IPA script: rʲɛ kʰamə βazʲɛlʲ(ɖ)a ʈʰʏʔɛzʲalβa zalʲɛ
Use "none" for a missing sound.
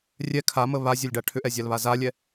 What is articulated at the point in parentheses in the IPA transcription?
ɖ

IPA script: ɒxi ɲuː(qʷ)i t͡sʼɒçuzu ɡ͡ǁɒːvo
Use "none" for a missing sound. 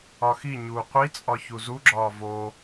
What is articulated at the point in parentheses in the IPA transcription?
qʷ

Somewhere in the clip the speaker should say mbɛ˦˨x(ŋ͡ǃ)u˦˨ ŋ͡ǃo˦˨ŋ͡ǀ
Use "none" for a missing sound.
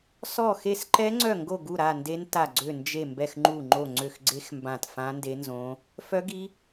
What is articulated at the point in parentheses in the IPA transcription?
ŋ͡ǃ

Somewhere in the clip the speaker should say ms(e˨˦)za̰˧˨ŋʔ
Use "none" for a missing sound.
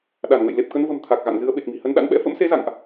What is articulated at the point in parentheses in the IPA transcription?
e˨˦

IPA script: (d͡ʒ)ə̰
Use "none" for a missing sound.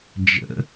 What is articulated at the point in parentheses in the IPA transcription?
d͡ʒ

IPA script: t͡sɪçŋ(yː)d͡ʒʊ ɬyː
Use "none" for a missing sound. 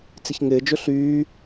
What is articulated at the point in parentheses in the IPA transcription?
ɪː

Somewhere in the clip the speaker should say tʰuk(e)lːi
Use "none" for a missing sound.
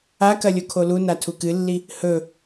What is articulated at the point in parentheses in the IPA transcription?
ɨ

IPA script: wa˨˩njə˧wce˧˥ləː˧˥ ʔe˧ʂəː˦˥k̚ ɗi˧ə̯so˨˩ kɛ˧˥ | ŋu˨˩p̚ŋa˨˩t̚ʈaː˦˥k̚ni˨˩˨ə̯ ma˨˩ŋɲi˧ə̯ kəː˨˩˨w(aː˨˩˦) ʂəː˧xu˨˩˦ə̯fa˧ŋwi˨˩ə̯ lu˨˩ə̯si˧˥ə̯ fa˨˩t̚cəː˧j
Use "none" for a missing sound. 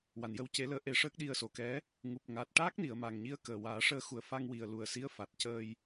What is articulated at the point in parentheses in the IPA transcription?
aː˨˩˦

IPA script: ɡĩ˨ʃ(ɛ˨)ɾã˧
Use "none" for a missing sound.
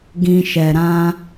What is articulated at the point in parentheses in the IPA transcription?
ɛ˨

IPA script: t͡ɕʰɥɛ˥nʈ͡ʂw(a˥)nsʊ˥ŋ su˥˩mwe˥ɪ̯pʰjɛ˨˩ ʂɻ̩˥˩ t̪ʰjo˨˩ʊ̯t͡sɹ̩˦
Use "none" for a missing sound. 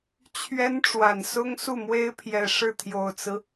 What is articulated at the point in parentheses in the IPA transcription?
a˨˩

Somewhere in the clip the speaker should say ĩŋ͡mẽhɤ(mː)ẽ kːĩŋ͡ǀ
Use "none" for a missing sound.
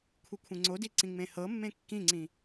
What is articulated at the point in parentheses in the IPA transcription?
mː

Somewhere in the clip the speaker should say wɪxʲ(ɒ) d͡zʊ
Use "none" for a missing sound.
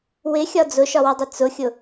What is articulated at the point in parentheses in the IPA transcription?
ɒ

